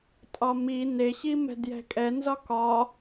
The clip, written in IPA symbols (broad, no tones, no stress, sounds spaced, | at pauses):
tʼ ɒ m i n e ɕ i m ɛ̤ d j ɛ̤ kʼ ɛ n z ɒ k ɒ